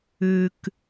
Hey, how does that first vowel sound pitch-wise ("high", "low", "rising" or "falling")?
low